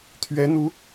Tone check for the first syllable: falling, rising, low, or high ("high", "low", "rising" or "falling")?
rising